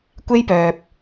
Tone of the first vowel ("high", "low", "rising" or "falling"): high